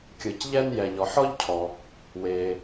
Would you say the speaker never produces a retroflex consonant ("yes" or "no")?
yes